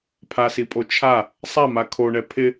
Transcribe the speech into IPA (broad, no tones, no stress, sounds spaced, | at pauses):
pʰ a s i pʼ o t͡ʃʰ a | sˤ a m a kʰ o ɳ ɛ pʰ ɪ